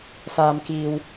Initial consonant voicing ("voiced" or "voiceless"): voiceless